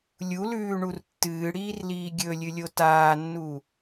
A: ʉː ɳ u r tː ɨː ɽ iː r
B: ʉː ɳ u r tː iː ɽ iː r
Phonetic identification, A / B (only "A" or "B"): A